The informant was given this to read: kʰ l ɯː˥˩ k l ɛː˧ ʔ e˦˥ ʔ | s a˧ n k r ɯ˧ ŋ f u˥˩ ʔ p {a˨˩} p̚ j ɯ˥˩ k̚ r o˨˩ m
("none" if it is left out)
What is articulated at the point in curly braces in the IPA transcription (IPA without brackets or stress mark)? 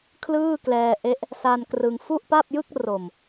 a˥˩